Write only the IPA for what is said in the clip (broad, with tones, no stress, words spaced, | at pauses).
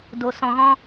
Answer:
do˨sɔ̃˨ɣɔ̃˧